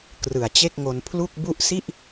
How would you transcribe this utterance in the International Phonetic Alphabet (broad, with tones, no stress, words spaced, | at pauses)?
krɯ˨˩a̯t͡ɕe˥˩k̚ŋo˧n pʰlu˥˩k̚ bu˦˥ʔsi˥˩ʔ